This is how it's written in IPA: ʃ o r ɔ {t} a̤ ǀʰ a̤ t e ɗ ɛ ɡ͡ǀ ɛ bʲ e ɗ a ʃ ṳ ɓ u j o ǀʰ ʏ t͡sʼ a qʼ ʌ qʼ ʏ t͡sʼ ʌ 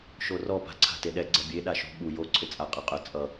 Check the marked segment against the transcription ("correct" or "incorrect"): incorrect